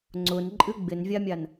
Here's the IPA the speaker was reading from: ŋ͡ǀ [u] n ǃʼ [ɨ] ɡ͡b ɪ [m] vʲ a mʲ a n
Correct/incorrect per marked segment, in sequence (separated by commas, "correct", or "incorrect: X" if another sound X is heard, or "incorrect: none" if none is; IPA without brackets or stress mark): incorrect: ʊ, correct, incorrect: n